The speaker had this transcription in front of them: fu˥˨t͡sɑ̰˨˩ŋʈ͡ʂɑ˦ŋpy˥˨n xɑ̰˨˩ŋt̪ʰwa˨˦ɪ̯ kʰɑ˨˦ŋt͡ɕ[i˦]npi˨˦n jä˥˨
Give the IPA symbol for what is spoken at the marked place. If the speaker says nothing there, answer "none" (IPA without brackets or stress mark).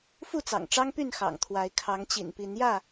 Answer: ḭ˨˩